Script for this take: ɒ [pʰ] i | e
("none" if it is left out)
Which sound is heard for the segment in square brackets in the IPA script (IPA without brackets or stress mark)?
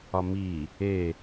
m